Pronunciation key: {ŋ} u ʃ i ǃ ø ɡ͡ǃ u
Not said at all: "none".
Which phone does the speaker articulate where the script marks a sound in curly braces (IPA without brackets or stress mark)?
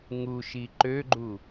ŋ